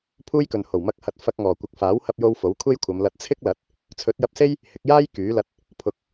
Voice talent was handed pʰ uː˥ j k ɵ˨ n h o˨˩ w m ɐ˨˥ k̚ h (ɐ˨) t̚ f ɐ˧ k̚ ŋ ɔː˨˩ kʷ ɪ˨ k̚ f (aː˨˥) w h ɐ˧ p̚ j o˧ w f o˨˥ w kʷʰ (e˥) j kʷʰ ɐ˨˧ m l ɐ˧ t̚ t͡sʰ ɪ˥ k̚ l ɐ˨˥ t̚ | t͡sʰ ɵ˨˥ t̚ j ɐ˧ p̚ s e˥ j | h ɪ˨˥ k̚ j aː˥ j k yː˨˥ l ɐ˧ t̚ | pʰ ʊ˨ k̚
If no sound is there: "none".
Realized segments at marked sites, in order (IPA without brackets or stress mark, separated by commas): ɐ˨, aː˨˥, e˥